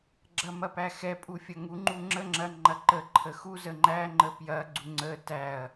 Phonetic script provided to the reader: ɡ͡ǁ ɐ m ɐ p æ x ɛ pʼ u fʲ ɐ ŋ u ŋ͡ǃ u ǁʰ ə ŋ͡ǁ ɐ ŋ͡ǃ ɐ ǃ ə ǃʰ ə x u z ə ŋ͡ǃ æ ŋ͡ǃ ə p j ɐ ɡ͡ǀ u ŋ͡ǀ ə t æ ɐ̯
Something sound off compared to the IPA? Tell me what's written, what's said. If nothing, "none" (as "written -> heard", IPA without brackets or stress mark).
ǁʰ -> ŋ͡ǁ